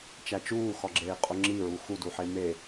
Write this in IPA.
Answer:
t͡ʃ æ t͡ʃ uː x ɒ ɡ͡ǁ eː qʼ o ŋ͡ǁ i ɹ u x u d u ħ e m e

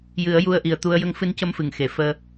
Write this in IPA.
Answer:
j ɨ˨˩˦ ə̯ j u˧ ə̯ ʔ i˨˩ ə̯ t̪ u˧ ə̯ j ə˧˥ ŋ f ɨ˧ n c ə˧˥ m f ɨ˨˩˨ ŋ x e˨˩˨ f əː˧

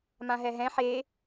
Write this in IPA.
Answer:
m ã ɦ ɛ ɦ ɛ̃ ħ e

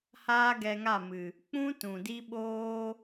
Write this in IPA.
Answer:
h aː˦ ɡ ɛ˧ ŋ a˦˨ m ɨ˨ | k͡p ũ˦ t ũ˨ d i˦ ɓ oː˦

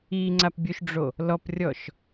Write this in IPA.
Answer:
i ŋ͡ǀ a p bʲ u ʃ ɖ͡ʐ o | l ɔ p rʲ ɔ ʃ

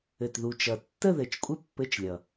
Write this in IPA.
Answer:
ɘ˨˩ t ð u˨˩ t͡ʃ ʌ˨˩ tː ə˥˧ ð ɘ˨˩ t͡ʃ kʷʼ ɘ˥˧ pː ɘ˧˥˧ t͡ʃ lʲ ʌ˨˩

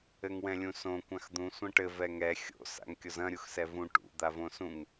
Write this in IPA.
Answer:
ɘ ŋ w ɛ̃ lʲ ũ s õ kʷ ã x d̪ ũ sʷ ɐ̃ ʈ ɘ v ɛ ŋ ɛ xʲ o̰ s a̰ ŋ kʲ o z ɐ̃ ɾʲ u x s ɛ v ũ ʈ ṵ d̪ a v õ s ũ ŋ

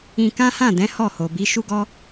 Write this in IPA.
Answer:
ĩ˧ k ã˦ h ã˦˨ d ɛ̃˨˦ h ɔ˦˨ h o˨ b i˨˦ ʃ u˦ ɡ ɔ˦

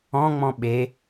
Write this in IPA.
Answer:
ɔ̃ ŋ͡m ɔ̃ ɓ e

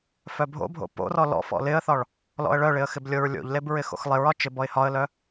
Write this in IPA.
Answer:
f œ bʱ o̰ bʱ o̰ p o̰ r ɔ l ɔ̰ f ɔ̰ l ɪ ə̯ θ ɒ ɭ | l ɔ̰ ə̯ ɭ œ ɭ ɪ ə̯ x ɪ b lʲ o ɹ lʲ o̰ ʎ l e b ɹ ɪ x o̰ x lˠ ɪ ɹ ɒ t͡ʃ ɪ b ɔ ɪ̯ h ɒ ə̯ l œ

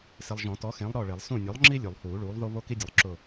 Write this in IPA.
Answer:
s ɪ˨ lˠ ʒ ɔ̃˨˩˦ t ɔ˨˥ x ẽ˨˥ lˠ ɾ ɔ˦˨ ɭ e˨˩˦ lˠ s ũ˦˨ nʲ o˨˥ lˠ ŋ͡ǁ i˥ lʲ u˨˩˦ lˠ h uː˨˩˦ ɭ uː˨˥ lˠ ð o˥ β o˥ k i˥ dʲ ʊ˨˥ lˠ ǁ ʊ˦˨

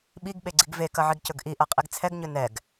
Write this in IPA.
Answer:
ɓ i ɡ ɓ e ɡ͡ǀ i ɡ v e k ɐ ʕ i ɡ c ɵ ɡ ʔ i ʔ ɐ qʼ i ɡ t͡sʰ ɛ ɡ ɲ ɵ n ɛ ɡ

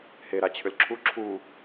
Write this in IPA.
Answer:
h e ɾ a t͡ɕʰ ʏ l ǁʰ u ǁʰ u

